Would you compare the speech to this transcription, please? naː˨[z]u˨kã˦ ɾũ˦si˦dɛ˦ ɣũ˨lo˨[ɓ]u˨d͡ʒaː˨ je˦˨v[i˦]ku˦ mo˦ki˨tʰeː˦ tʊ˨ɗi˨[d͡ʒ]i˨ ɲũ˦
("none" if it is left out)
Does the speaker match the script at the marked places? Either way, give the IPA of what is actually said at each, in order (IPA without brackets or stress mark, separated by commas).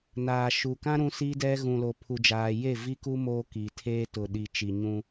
ʃ, pʰ, i˦, t͡ʃ